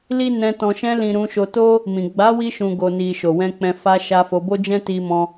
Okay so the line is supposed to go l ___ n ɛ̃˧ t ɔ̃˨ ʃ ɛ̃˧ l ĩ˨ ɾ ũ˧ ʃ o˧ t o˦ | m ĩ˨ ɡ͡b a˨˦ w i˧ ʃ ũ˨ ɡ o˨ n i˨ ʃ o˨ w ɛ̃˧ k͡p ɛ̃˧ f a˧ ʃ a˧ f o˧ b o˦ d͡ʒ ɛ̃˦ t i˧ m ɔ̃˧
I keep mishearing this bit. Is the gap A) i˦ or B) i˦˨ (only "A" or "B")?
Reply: A